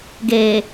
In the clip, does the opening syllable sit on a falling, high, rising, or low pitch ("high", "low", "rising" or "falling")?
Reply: low